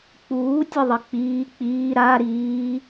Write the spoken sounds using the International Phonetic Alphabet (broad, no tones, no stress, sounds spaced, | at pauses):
k͡p uː tʲ ə ðˤ ə k͡p iː k͡p iː ɾ a ɾ iː